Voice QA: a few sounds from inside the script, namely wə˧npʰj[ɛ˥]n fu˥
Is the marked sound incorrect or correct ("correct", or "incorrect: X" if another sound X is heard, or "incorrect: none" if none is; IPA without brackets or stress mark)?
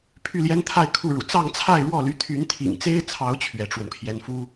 correct